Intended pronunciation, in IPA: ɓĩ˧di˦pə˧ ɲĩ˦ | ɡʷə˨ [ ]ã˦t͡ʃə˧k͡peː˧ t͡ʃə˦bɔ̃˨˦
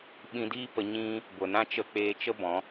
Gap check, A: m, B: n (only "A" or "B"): B